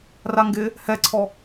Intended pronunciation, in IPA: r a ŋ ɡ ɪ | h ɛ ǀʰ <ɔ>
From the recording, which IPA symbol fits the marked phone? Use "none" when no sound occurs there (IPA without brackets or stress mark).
ɔ